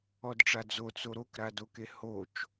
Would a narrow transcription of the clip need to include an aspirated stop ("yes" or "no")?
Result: no